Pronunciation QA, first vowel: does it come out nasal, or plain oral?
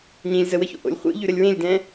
nasal